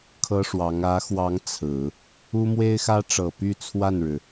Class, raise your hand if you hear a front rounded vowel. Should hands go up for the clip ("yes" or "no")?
yes